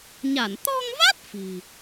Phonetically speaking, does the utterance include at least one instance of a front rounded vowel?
no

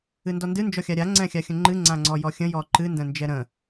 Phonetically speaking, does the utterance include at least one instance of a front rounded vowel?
no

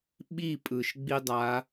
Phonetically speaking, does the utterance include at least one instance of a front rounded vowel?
no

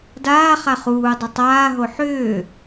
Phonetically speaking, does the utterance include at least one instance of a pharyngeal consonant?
yes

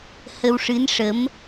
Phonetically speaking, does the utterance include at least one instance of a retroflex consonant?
yes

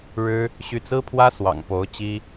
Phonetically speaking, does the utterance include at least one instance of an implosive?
no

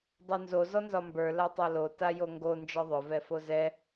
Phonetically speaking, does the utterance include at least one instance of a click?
no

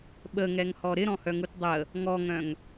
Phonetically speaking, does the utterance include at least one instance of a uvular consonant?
no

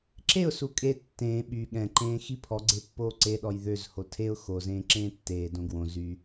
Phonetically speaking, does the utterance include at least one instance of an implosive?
yes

